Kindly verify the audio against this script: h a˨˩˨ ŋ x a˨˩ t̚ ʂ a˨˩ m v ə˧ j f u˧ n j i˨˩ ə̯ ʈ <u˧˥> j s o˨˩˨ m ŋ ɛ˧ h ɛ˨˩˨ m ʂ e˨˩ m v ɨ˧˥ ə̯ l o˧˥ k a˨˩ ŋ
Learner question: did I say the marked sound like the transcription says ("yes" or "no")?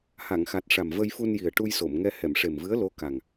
no